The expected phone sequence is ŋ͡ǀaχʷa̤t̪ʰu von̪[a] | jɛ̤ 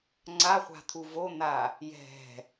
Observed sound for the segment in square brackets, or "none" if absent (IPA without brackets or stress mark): a